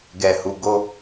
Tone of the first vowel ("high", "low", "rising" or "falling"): low